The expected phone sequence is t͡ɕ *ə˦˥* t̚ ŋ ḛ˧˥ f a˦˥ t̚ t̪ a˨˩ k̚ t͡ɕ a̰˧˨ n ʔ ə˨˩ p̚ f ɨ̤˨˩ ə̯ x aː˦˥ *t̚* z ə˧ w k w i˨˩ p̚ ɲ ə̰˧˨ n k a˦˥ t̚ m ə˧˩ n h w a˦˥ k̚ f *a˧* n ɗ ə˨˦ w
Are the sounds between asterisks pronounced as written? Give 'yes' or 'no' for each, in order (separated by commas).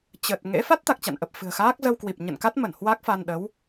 no, no, yes